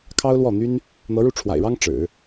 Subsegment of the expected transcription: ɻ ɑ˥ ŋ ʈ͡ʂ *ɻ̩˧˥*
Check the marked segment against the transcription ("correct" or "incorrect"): incorrect